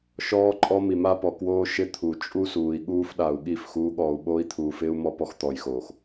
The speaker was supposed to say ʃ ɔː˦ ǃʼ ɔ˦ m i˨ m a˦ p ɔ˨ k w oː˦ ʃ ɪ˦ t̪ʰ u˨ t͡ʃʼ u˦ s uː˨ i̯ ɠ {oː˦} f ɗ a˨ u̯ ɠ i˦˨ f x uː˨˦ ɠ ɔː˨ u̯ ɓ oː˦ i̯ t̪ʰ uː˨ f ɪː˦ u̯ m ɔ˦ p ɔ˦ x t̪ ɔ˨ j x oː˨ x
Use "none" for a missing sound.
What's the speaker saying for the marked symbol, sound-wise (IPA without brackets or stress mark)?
uː˦